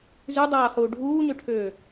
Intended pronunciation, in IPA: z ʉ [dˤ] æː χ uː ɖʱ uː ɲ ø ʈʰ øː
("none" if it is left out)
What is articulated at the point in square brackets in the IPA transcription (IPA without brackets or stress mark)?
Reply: dˤ